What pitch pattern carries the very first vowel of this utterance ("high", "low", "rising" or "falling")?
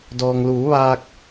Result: low